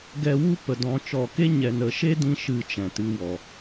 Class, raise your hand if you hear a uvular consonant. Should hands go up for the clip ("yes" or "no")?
no